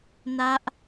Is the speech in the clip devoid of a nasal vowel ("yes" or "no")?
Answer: yes